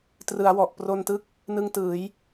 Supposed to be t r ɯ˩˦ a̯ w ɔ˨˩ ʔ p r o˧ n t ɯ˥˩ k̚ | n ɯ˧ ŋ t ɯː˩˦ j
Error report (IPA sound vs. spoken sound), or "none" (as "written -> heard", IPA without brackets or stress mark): none